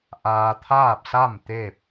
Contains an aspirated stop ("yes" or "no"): yes